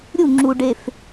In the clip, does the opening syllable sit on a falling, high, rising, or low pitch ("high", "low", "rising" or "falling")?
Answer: falling